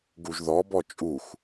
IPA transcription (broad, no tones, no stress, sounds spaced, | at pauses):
ɡ u ʒ ð ɔ b ɔ t͡ʃʼ u x